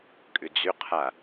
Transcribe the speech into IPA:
kʼ ʏ d͡z ʏ qʰ a

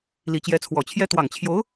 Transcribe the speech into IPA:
l i˨˩ t͡ɕ j ɛ˧˥ t͡sʰ w ɔ˨˩ t͡ɕʰ j ɛ˥ t̪ w ɑ˨˩ ŋ t͡ɕʰ j o˧˥ ʊ̯

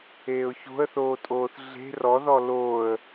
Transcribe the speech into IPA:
eː ʊ̯ ç o̤ ə̯ θ oː tʼ oː θ ɮ e̤ r ɔ ð ɔ l oː ə̯

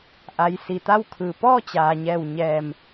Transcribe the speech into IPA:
ʔ a˩ j s i˩ t̪ a˥˨ w kʰ ɯː˩ p ɔː˥˨ t͡ɕ aː˩ ɲ ɛː˧˩ w ɲ ɛː˧˩ m

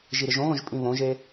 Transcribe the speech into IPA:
ʒ i ɾ ɪ ʒ õ ɣ õ ʒ pʼ ĩ β õ ʒ e

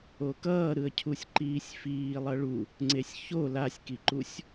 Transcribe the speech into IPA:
o k ʌː ɾ ɯ ə̯ cʰ u sʲ ǃ iː sʲ f iː lˠ ʌ ɭ u | ŋ͡ǀ e sʲ ç o l a sʲ k i ǃ u sʲ

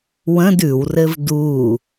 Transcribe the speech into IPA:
w ə̃ d ʉ w r ɘ v d u

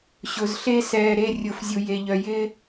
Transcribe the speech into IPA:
ɕ ʊ˨ z ɬ e˦ s ɛː˨ ɾ e˦˨ rʲ ʊ˨ f zʲ u˨ j e˨ ʎ œ˨ j ɪː˦

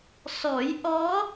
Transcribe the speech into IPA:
s ɔ˨˩˦ j ʔ ɔ˧˥

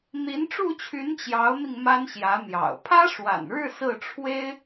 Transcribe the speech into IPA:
n̪ i˧˥ n ʈ͡ʂ u˥˩ t͡ɕʰ y˧˥ n t͡ɕ j ɑ˧˥ ʊ̯ n̪ i˧ ŋ m a˥ n ɕ j ä˧˥ n̪ j ɑ̰˨˩ ʊ̯ pʰ ä˥ ʂ w a̰˨˩ n ɻ ɻ̩˥˧ s ɹ̩˥˩ ʈ͡ʂʰ w e˥ ɪ̯

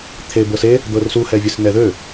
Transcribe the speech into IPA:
t̪ʰ e b ɤ s e | d̪ ɤ r s u h ɛ vʲ ɘ s n ɛ ð ø

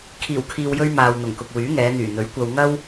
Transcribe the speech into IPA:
kʰ iː˨˩ w kʰ iː˨ w j ɵ˧ ɥ m aː˨ w n̪ ʊ˨˩ ŋ k ʊ˨ k̚ w yː˨˥ ŋ ɛː˨˧ n̪ yː˨˩ n̪ ɵ˨˥ ɥ kʷ ɐ˧ w ŋ ɐ˥ w

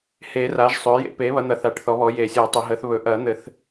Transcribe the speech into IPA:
h eː˨˩˦ r a˩˥ ʒ sˤ ɵː˩˥ j ḛ˨˩˦ p eː˩˥ β ɐ˩˥ n̪ ɐ˩˥ θ a˩˥ ʈ θ ɔ˩˥ β ɔ˩˥ j e˨˩˦ sʲ əː˨˩˦ tˤ ɘ˨˩˦ ɦ əː˩˥ θ β ɵ˨˩˦ ʔ ɐː˨˩˦ n̪ ɘ˨˩˦ θ

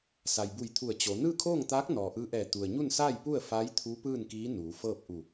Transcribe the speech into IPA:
s a˩ j b u˧˩ j t̪ʰ u˧˩ ə̯ t͡ɕ o˩˧ n ɯː˥˨ kʰ oː˥˨ ŋ t̪ aː˧˥ k̚ n ɔː˩ ʔ ɯː˧˥ ʔ ɛː˧˩ t̪ u˩ ə̯ ɲ u˥˨ n s aː˥˨ j p u˥˨ ə̯ f a˧˥ j t̪ʰ u˧˥ p ɯː˥˨ n k iː˧˥ n uː˩˧ f ɤː˥˨ p̚ ʔ u˧˩

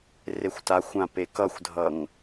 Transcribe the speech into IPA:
r e xʷ t a xʷ ã p e k ʌ xʷ dʱ ʌ ŋ

